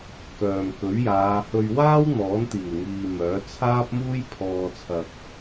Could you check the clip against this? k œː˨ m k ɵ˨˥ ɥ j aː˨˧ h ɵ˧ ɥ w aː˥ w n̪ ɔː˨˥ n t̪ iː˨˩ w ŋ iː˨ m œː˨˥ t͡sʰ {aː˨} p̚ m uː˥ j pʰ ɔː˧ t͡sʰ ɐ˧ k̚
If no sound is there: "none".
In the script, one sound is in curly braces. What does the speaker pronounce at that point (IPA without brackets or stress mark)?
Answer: aː˥